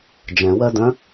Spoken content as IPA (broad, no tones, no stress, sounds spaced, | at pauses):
d͡ʒ ɛ̃ w ɜ d œ̃